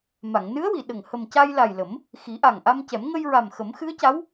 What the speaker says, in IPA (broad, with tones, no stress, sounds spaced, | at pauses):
m a˨˩˨ ŋ n ɨ˧˥ ə̯ w i˨˩˨ ɗ ə˨˩ ŋ h ə˨˩ m c a˧ j l a˨˩ j l ə˨˩˦ m | x i˨˩˦ ʔ a˨˩ ŋ ʔ a˧ m c ɛ˨˩˦ m ŋ ə˧ j ɹ a˨˩ m x ə˨˩˦ m x ɨ˧˥ ə̯ c a˧˥ w